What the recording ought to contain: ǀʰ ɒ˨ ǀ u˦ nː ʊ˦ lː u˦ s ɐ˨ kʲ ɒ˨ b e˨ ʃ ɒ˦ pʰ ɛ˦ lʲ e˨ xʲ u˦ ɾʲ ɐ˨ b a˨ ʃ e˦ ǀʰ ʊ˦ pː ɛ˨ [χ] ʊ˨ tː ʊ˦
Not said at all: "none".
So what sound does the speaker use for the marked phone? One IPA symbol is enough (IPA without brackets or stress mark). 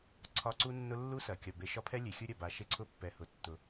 h